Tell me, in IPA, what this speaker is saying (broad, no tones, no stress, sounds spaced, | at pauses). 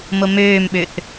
m o m øː m ɓ ø θ